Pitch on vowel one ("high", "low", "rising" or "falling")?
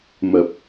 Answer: low